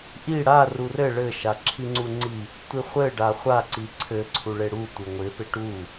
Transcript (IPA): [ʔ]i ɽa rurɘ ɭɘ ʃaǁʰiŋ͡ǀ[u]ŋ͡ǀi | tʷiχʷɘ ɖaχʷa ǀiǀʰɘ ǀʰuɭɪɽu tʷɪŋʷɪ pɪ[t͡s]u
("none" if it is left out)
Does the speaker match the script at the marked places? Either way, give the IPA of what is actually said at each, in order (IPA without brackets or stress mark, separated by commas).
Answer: ʔ, u, ʈ